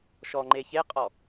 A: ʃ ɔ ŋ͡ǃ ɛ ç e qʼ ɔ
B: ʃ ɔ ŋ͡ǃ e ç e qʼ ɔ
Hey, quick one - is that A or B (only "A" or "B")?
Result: B